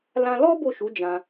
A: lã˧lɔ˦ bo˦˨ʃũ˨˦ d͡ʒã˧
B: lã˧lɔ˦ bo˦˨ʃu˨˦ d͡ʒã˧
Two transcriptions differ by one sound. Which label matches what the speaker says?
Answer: B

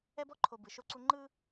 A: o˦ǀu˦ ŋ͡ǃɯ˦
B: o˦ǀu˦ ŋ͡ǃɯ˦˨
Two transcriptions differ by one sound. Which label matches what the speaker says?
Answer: A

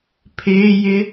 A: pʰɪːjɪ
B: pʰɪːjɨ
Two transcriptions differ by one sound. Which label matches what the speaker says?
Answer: A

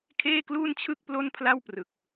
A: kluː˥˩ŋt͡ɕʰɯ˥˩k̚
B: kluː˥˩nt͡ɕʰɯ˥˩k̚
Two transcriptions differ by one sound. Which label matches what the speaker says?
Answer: B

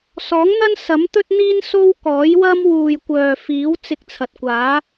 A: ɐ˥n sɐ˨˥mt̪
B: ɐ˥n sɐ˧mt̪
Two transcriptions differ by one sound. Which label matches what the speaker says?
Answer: A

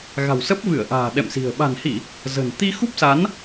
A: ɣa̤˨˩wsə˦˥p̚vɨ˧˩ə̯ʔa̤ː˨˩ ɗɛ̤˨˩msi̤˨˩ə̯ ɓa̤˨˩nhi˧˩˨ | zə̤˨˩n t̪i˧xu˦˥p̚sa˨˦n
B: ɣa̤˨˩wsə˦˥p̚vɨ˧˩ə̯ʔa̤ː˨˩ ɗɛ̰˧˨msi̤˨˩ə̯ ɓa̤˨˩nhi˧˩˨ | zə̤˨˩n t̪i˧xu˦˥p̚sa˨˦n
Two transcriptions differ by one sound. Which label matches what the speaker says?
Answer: B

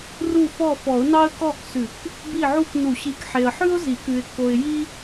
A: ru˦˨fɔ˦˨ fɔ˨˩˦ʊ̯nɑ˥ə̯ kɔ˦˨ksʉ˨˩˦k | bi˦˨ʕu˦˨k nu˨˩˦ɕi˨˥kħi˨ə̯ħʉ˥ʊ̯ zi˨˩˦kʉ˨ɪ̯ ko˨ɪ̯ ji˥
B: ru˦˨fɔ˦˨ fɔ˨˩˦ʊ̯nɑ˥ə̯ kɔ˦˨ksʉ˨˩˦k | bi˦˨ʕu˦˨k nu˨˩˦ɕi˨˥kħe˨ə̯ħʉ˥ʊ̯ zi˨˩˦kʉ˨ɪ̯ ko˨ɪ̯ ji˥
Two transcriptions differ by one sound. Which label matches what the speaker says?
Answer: B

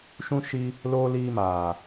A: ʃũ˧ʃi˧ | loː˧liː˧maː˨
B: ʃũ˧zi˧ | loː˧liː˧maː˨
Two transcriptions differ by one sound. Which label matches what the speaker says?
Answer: A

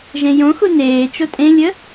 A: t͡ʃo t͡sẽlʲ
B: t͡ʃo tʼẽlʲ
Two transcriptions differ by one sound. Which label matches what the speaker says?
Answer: B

